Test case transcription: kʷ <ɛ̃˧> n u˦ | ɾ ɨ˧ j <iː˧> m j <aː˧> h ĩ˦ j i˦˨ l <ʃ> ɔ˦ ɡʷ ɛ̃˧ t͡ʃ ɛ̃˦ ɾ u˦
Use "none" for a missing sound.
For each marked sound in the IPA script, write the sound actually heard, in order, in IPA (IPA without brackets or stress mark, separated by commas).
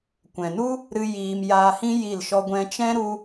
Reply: ɛ̃˨, iː˧, aː˧, ʃ